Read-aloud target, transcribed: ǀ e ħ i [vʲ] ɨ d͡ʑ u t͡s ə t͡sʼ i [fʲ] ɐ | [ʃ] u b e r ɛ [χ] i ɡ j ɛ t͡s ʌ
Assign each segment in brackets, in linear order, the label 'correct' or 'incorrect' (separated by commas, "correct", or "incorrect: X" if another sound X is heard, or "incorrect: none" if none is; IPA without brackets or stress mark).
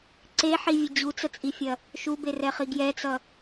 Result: correct, correct, correct, correct